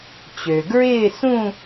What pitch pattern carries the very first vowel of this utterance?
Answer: low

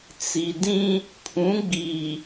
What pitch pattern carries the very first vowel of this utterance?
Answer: low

